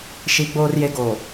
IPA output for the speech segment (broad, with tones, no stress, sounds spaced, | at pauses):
ʃ i˨ ɡ͡b oː˨ r j e˨ ɡ oː˨